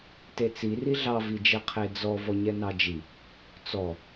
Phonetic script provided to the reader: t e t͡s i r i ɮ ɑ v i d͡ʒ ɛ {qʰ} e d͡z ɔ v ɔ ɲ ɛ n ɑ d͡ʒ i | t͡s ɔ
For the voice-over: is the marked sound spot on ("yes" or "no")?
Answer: yes